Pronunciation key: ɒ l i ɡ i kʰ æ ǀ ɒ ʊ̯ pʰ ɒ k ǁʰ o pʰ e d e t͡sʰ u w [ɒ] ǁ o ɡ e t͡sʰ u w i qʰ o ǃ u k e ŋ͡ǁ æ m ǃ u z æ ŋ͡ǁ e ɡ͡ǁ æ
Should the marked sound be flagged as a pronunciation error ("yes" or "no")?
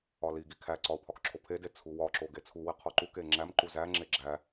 no